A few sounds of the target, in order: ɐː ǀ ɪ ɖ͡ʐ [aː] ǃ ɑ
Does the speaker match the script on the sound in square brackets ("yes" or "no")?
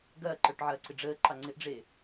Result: no